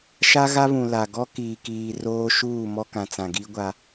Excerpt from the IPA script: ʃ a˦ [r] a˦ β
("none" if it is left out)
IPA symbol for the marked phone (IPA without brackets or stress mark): ɣ